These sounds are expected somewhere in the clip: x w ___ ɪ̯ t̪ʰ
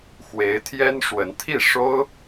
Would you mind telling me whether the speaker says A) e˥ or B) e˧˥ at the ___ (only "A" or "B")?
B